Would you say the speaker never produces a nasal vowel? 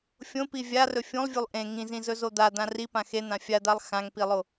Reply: no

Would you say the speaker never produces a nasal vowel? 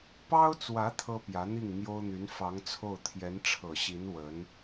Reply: yes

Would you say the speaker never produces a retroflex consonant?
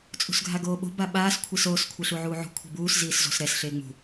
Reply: yes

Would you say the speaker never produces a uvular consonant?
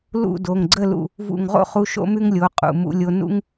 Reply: no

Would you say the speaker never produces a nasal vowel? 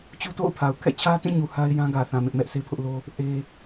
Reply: no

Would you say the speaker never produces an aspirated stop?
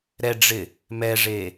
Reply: yes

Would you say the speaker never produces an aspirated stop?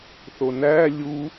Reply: yes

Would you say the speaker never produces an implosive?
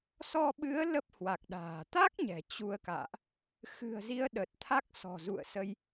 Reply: no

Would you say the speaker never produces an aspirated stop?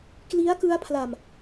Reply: no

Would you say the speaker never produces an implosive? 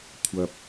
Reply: yes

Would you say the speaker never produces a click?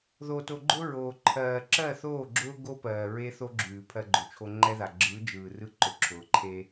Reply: no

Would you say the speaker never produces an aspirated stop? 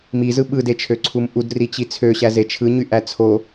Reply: no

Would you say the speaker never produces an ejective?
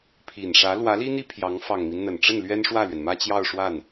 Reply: yes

